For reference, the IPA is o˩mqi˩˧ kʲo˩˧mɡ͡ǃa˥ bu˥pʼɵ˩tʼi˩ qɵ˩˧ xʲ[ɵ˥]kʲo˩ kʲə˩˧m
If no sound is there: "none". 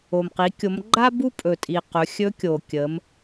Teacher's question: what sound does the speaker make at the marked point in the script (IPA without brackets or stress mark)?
ɵ˧˥